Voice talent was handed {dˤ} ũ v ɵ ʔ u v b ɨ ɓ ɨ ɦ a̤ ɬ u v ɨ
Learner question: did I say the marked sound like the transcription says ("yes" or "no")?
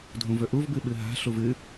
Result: no